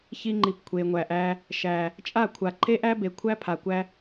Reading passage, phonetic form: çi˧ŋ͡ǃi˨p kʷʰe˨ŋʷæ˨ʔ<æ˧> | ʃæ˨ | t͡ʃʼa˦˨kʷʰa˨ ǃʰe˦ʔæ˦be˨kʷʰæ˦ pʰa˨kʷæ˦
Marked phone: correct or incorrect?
correct